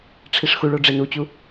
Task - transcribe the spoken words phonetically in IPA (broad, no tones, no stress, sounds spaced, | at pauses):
ʈ͡ʂʰ i ʂ x u ɭ o ɖ͡ʐ e n u t͡ɕ u